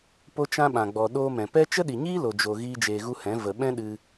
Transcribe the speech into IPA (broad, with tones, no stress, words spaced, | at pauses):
po˦t͡ʃã˦ɓã˨ɡ͡bɔ˨ ɗoː˧mɛ̃˨ pɛ˦ t͡ʃə˦ɗi˨ɲiː˦ lo˨d͡ʒo˨ ɣiː˦d͡ʒeː˧ɣu˦hɛ̃˨˦ və˨ɓɛ̃˦ɗɨ˧